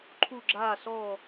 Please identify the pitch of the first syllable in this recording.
falling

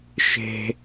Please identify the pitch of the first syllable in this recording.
low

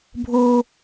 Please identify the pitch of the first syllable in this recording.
high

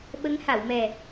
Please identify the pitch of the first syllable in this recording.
rising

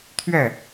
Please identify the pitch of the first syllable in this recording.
falling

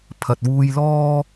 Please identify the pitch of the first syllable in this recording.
low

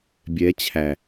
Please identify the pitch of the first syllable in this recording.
rising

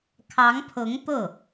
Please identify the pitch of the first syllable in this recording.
rising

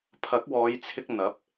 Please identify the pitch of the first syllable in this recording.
rising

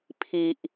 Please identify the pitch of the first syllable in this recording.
low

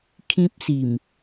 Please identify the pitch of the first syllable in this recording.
high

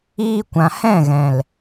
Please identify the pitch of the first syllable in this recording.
high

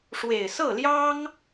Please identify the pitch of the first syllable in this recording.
low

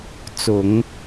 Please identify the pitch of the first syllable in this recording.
low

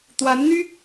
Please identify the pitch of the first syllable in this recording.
rising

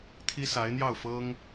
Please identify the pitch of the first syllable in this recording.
high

